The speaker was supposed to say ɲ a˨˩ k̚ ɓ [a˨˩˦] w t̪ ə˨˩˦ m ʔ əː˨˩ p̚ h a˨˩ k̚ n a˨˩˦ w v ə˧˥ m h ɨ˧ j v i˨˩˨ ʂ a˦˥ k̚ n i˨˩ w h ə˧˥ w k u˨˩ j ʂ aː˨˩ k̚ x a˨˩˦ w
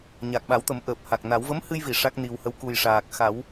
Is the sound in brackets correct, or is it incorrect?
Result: correct